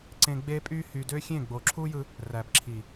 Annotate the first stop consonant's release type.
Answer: click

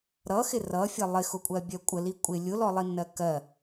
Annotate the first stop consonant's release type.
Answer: ejective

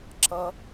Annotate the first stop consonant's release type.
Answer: click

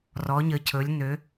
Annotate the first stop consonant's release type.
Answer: aspirated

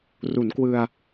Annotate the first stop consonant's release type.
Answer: plain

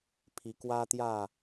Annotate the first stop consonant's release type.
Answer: aspirated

